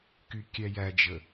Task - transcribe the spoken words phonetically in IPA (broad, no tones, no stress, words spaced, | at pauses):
kykʲæjæd͡ʒə